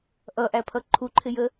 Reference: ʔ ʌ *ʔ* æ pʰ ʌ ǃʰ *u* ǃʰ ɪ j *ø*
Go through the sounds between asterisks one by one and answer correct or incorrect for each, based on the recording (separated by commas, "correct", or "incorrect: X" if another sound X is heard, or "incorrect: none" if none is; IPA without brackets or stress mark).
correct, correct, incorrect: ə